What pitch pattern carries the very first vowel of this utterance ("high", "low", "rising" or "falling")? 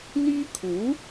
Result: high